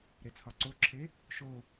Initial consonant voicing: voiced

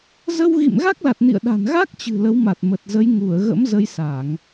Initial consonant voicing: voiced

